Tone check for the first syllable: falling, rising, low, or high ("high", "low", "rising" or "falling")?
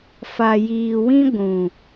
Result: low